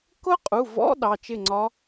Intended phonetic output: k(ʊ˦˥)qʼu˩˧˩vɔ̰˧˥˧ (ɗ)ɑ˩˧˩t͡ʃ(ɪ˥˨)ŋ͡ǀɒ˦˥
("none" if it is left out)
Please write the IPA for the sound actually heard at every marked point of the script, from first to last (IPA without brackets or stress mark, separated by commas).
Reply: ʊ˦˥, ɗ, ɪ˥˨